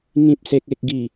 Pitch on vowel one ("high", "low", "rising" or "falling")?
high